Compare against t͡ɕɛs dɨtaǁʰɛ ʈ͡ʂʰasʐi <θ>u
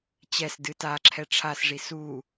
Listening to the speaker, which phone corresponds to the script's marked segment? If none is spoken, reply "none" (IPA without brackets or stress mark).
s